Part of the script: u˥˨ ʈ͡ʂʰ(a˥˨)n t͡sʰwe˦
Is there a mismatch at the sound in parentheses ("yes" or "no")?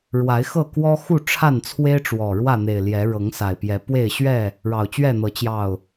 no